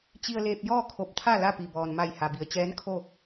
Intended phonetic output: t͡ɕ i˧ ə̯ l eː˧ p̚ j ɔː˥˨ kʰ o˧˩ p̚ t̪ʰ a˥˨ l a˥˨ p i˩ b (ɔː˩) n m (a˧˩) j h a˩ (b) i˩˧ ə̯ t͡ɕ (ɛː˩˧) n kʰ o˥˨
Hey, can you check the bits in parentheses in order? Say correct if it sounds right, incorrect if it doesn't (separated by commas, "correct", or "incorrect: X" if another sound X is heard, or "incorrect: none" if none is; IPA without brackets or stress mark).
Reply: correct, correct, correct, incorrect: ɛː˧˥